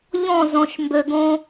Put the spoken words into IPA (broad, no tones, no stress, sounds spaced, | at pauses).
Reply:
ʎ ɔ̃ z ɔ̃ ʃ m b ø ɡ õ